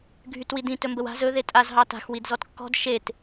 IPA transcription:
ɡʱ y t w i d ĩ t ɵ m b ə w a̤ z ɵ ð e tʼ a z ɦ ɑ t a̤ x w i d z ɔ t kː ɔ̤ d ʃ e t

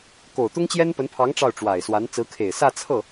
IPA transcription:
k o˨˩ ʊ̯ t̪ ʊ˥ ŋ t͡ɕ j ɛ˥ n p ə˧˥ n pʰ ɑ˧˥ ŋ ʈ͡ʂ ɑ˥˩ ʊ̯ ʈ͡ʂ w a˨˩ ɪ̯ s w a˧˥ n t͡s ɹ̩˧˥ kʰ e˨˩ ɪ̯ s ä˥˧ t͡sʰ ɤ˥˩

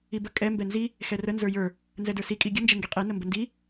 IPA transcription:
i b ə kʼ ɛ m b ɛ n z i | x ɛ r ə n z ə˞ j ə˞ | n z ɛ d ə˞ s i kʼ i ɡʲ ə n d͡ʒ ɛ ŋ ɡ i qʼ i n ə m b ə n d i

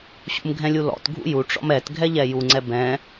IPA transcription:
ɕ ṵ m ɡʱ ɛ̃ lʲ u l ɔ̰ t ɡʱ ṵ j u ʈ͡ʂ ɔ̰ m ɛ t ɡʱ ɛ ʎ ɛ j u ŋ͡ǀ ɛ b ɛ̃

